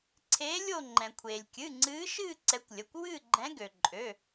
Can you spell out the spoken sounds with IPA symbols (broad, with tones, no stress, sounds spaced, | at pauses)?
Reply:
ǀʰ eː˨˦ lʲ o˦˨ ŋ͡ǃ ɛ̃˩ kʷʰ eː˩ lʲ kʲ ɨ˩˧˩ ŋ͡ǀ ɨː˨˦ ʃ ɨː˦˨ ǀ ɛ˨˦ kʷ lʲ ə˩˧˩ kʷ w ɨː˦˨ ɡ͡ǃ ɛ̃˨˦ ɡ ø˩ ǃʼ ø˩˧˩